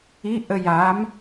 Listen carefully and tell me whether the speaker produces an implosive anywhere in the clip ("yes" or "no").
no